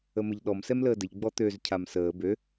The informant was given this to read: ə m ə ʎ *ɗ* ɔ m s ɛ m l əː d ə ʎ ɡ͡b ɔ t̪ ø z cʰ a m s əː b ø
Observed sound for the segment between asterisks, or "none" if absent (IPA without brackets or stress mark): ɗ